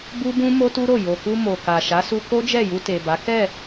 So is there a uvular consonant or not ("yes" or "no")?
no